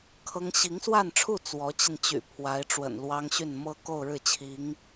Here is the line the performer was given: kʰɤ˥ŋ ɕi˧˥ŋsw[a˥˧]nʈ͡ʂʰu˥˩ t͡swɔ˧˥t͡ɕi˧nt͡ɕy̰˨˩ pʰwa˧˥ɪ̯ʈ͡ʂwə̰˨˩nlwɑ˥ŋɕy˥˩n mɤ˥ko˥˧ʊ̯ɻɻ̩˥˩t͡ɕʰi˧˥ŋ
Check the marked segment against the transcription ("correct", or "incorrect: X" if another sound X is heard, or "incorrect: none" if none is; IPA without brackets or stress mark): correct